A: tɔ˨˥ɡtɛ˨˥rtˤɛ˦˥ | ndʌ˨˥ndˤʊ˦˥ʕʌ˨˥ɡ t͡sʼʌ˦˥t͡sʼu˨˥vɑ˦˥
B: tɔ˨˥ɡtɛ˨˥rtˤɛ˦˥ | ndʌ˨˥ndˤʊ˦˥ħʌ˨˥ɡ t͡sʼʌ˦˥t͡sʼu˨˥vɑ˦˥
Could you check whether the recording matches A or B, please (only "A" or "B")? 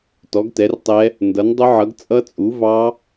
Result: A